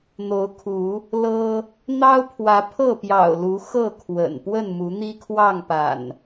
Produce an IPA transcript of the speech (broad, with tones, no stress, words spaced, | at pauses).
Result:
n̪o˨˦ʊ̯kʰu˨˦ | lɤ˦ | n̪ɑ˦ʊ̯pʰwä˨˦ pʰɤ˥˨pjɑ̰˨˩ʊ̯lu˨˦ xɤ˥˨ kʰwə̰˨˩n pwə˥˨nmu˨˦ n̪i˦kʰwɑ˥˨ŋpa̰˨˩n